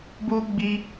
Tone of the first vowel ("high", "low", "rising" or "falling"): high